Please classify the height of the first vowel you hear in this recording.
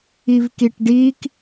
high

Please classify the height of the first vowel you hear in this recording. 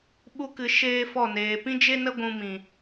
high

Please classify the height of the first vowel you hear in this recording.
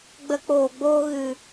mid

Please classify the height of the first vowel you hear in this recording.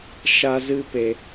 low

